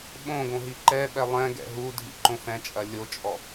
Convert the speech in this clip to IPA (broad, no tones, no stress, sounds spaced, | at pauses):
ɓ õ ɡ õ ɦ i ǃ ɛ ɓ ɛ lˠ ɛ̃ ɡ ɛ̰ ɦ u dʱ ḭ ǃ õ f ɛ̃ t͡ʃʼ ɐ lʲ o t͡ʃʼ ɔ